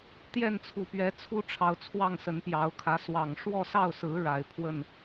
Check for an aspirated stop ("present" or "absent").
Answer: present